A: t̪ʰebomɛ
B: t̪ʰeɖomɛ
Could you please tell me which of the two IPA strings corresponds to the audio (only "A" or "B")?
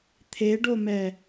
B